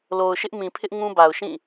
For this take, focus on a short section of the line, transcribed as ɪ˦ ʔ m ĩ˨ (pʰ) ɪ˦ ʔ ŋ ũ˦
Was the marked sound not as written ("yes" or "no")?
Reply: no